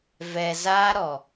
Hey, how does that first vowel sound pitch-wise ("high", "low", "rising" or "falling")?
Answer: low